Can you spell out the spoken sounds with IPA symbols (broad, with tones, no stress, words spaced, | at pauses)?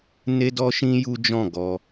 ne˦dɔ˦ʃĩ˦ ju˦d͡ʒɔ̃˦˨ ɡɔ˧